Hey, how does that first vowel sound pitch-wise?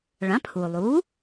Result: rising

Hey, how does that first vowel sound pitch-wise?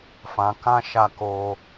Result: low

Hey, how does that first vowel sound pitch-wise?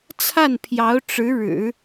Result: falling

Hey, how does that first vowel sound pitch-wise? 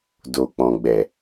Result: low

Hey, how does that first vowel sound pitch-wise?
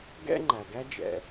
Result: high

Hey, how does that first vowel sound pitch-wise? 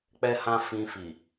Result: high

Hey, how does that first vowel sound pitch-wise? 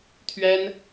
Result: high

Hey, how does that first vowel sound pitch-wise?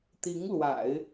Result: rising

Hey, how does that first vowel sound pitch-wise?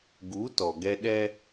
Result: rising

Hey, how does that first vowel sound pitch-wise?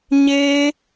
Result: high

